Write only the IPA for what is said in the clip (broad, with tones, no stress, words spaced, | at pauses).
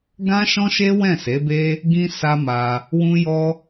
ɡã˦ʃɔ̃˦ʃe˦ wɛ̃˦˨se˨˦be˦ | ɡĩ˦ sa˦ma˧ | wũ˦jɔ˦